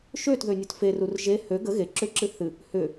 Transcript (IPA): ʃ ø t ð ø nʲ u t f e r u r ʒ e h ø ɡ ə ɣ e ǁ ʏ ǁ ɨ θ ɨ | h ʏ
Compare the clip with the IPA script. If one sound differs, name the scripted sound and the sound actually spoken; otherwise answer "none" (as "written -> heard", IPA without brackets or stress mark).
none